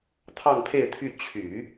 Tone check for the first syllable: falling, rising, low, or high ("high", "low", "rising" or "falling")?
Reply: falling